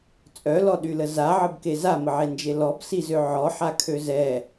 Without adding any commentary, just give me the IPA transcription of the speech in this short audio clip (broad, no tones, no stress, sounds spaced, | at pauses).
t͡sʼ œ l ɔ ɗ y l ə z a ʕ ə b k e z a m ə ʕ e n d͡ʒ e l ɔ b s i z ø ʕ ɔ ħ a kʰ ø z ɛ